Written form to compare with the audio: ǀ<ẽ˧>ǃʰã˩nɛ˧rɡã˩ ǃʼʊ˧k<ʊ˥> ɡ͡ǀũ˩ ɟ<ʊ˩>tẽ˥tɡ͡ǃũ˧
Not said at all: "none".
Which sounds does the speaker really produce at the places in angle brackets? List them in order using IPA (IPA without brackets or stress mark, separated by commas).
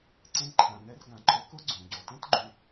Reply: ẽ˧, ʊ˥, ɔ˩